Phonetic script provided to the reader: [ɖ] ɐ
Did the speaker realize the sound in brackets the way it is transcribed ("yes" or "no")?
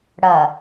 no